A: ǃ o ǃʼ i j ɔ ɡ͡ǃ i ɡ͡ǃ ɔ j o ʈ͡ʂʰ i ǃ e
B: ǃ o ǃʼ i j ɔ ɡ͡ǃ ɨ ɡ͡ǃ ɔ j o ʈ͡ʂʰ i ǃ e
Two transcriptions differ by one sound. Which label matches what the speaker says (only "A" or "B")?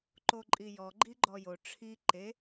A